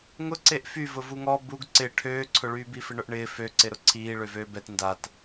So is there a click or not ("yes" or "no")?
yes